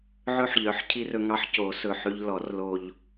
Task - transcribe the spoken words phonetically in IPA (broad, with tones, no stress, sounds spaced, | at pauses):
ʕ ɵ˧ ħ ʎ œ˩˧˩ ħ cʰ i˧ r ɵ˧ ŋ ɑ˧ ħ c o˨˩˦ s ɵ˩˧˩ ħ ʉ˧ ʎ l ɔ˨˩˦ r l o˧ ʎ